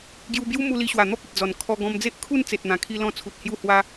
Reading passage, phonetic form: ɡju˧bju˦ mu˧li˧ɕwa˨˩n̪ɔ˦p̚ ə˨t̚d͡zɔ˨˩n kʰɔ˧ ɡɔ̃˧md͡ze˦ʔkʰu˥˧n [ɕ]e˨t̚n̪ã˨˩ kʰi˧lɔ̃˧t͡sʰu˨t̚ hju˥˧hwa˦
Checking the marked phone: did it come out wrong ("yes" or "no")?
yes